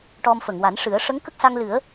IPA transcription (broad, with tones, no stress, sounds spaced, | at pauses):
ʈ ɔ˧ m f ə˨˩˨ ŋ w a˨˩˦ n ʂ ɨ˨˩˦ ə̯ ʂ ə˧˥ ŋ k ə˦˥ k̚ s a˧ ŋ l ɨ˨˩˦ ə̯